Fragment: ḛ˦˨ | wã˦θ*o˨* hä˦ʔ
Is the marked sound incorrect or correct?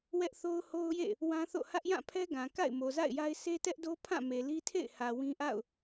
incorrect